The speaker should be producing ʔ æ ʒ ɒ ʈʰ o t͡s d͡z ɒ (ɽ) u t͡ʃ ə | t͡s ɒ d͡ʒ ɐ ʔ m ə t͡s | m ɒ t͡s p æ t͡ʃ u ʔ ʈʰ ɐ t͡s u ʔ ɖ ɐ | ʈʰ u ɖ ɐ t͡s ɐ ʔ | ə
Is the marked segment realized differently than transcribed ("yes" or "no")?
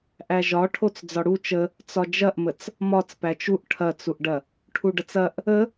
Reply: no